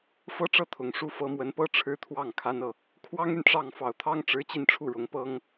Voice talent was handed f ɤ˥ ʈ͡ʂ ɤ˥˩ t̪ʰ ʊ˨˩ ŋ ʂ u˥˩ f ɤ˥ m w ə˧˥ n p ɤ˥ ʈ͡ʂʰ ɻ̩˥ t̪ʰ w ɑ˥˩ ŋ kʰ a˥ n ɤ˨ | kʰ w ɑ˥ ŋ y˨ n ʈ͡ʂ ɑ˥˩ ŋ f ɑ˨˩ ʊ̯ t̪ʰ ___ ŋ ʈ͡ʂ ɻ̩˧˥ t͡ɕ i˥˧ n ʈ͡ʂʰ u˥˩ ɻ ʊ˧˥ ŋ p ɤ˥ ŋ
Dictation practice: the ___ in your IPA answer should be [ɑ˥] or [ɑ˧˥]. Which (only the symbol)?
ɑ˥